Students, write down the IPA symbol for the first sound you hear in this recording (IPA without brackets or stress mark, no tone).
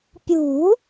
pʲ